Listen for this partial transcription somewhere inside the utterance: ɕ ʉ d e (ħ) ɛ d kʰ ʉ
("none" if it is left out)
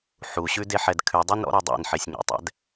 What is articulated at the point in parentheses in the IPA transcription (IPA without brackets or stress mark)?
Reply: ħ